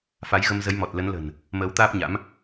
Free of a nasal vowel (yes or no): yes